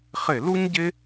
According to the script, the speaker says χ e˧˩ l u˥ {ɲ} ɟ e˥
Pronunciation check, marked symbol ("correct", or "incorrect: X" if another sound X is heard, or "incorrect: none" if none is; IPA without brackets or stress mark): correct